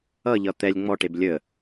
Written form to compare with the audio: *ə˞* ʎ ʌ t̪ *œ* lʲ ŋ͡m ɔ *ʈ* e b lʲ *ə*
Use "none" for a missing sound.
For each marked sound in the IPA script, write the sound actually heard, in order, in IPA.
ʌ, ɛ, ʈ, ə

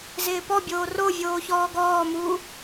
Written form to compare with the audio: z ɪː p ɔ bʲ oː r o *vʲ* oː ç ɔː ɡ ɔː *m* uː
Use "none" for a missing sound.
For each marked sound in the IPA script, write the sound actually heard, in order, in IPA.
vʲ, m

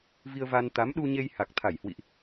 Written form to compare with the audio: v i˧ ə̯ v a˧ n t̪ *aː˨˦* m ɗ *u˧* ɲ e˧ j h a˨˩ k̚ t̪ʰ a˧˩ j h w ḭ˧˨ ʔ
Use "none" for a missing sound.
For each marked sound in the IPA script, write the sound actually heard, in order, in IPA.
a˨˦, u˧

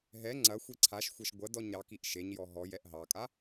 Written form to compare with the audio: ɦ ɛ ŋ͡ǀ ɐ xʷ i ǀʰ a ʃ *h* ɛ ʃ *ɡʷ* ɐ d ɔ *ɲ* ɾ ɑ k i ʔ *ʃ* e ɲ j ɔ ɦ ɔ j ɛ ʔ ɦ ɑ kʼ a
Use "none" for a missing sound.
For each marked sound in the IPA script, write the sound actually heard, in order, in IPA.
xʷ, ɡʷ, ɲ, ʃ

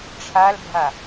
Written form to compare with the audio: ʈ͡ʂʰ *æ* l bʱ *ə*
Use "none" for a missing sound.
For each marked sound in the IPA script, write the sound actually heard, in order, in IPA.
a, a

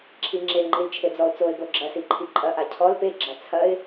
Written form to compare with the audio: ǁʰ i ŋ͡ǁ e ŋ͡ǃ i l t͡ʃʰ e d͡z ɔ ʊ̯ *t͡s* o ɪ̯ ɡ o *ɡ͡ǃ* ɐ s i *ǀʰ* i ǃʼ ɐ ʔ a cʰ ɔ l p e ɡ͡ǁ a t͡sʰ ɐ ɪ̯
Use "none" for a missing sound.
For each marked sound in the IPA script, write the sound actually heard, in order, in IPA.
t͡s, ɡ͡ǁ, ǃʰ

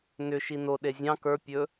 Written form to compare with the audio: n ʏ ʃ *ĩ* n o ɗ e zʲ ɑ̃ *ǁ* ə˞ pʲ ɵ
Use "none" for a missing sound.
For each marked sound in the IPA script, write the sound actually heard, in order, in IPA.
i, k

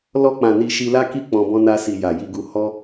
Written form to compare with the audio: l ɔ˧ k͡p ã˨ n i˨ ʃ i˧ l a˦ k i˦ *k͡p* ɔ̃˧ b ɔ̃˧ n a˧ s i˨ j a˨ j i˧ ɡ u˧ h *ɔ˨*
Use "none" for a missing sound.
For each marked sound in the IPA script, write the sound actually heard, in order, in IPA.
k͡p, ɔ˦

